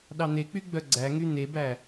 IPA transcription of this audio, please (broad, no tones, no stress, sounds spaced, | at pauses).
ɗ ɑ n̪ e k͡p y ɡ͡b œ ɡ͡ǀ æ ŋ y n̪ e b æ